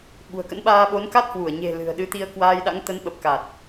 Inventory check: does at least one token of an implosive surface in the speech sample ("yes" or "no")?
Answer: yes